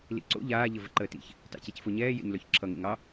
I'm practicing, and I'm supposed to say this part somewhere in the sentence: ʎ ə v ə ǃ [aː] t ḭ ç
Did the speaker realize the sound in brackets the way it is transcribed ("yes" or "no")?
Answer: no